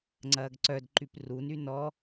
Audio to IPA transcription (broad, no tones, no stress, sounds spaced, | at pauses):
ŋ͡ǀ ɐː ɡ ǀ œ d ǃ y p r u n y n ɔ